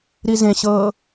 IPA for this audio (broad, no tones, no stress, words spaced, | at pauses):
ɾizẽɕɤː